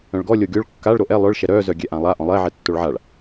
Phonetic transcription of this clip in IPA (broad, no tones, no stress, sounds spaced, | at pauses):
œ̃ ɭ ɡ ɔ lʲ o ɡʲ o ɭ kː a ɭ ɾ o ʔ ɛ lˠ œ ɭ ʃ ɛ ɾ œ z œ ɡʲ ɛ ʔ ã lˠ a ʔ ɔ̃ lˠ ɛ ʕ ɛ tː o ɭ ʕ a ɭ